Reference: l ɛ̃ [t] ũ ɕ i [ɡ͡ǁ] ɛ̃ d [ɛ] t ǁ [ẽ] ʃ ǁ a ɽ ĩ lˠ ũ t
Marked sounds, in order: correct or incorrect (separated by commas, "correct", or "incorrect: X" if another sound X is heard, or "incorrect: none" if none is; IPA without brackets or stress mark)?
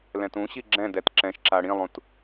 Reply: correct, correct, correct, incorrect: ɛ̃